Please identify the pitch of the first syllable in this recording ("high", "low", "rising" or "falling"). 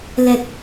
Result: low